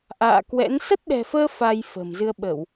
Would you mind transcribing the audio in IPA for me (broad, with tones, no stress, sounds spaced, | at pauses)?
ʔ a̰ː˧˨ k w ɛ̰˧˥ n s ə˦˥ t̚ ɗ ɛ̤˨˩ f əː˧ f a˧ j f ə̤˨˩ m z ɨ˧ ə̯ ɓ ə˧˩˨ w